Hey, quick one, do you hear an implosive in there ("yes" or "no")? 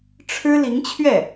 no